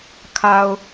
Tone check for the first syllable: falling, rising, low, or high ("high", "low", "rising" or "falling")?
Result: low